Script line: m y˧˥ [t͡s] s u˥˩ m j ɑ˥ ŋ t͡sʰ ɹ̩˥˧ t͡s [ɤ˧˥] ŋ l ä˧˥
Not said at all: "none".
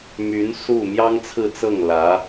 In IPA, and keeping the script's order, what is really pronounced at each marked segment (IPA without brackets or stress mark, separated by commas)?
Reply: n, ɤ˥˩